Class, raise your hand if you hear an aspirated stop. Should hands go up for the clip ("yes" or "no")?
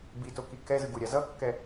no